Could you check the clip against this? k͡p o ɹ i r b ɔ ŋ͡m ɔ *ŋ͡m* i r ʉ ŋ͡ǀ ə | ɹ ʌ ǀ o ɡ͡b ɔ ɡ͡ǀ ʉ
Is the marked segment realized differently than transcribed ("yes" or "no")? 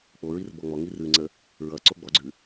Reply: yes